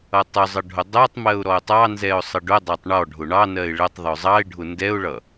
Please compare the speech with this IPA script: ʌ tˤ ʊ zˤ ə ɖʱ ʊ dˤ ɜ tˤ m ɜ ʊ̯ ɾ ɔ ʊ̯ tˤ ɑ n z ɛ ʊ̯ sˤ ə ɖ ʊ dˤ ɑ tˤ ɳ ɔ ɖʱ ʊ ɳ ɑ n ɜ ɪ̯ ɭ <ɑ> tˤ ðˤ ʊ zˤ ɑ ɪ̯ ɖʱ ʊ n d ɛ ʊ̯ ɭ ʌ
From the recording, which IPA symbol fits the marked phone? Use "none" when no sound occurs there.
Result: ə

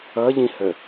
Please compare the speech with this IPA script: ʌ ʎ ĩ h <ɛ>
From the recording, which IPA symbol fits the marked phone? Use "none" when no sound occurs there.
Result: ə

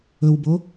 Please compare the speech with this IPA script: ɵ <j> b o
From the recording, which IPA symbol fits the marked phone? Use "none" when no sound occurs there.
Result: w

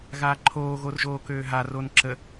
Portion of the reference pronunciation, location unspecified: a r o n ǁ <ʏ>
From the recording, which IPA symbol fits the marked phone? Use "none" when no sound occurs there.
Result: ə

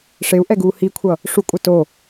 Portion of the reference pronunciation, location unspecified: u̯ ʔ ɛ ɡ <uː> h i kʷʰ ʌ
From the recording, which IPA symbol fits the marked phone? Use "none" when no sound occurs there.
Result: uː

